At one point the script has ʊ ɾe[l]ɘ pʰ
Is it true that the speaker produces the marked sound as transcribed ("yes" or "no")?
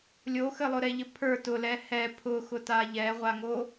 no